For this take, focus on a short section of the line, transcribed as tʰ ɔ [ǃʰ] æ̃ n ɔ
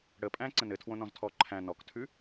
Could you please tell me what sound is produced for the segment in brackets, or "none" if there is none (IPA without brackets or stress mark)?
ǃʰ